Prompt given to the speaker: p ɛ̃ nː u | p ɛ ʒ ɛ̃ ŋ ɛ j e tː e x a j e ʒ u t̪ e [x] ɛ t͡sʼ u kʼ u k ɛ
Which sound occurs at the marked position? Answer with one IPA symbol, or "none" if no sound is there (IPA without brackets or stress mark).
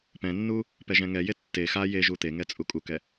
ŋ